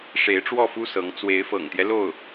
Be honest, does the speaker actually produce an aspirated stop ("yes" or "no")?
no